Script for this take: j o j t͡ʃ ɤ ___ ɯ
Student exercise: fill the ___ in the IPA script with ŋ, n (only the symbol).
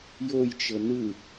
n